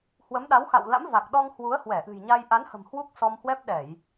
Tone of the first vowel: rising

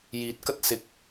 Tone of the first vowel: rising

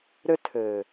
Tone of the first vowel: high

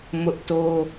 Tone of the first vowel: high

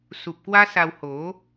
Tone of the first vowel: low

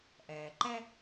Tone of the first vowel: low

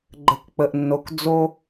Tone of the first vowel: low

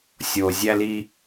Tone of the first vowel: low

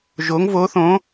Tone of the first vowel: rising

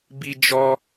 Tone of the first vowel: high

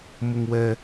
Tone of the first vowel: low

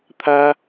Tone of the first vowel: high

